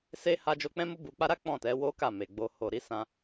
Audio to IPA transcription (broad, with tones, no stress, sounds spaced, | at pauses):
s e˧ h a˧ d͡ʒ o˧ k͡p ɛ̃˦ m u˦ b u˧ k͡p a˦ ɾ a˦ k͡p ɔ̃˦˨ t ɛ˨˦ w o˦ k a˦˨ m e˨ ɡ͡b o˧ h o˨ ɾ i˨˦ s ã˧